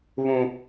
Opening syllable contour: high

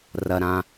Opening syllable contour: high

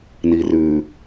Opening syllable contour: low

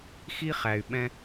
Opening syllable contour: high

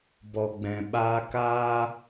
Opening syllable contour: low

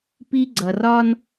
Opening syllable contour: high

